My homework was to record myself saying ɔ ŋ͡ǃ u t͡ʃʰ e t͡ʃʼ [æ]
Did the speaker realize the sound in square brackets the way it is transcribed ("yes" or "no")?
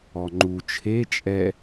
no